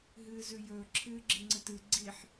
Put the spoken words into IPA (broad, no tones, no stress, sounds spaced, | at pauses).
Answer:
ɦ ɨː z ʉ j ɵː ǁʰ ɨː ɡ͡ǁ i ŋ͡ǀ ɨ t ɨ ɡ͡ǀ i ħ